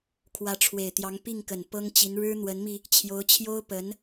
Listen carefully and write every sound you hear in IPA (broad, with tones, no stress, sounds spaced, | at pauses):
kʰ w ä˧˥ ʈ͡ʂʰ w e˨˩ ɪ̯ t̪ j ɑ˧˥ ŋ p i˥˩ ŋ k ə˨˩ n p ɤ˥ ŋ t͡ɕ i˧˥ n ɻ ɻ̩˥ n̪ w ə˧˥ n m i˧ | t͡ɕʰ j o˧˥ ʊ̯ t͡ɕʰ j o˥ ʊ̯ p ə˧˥ n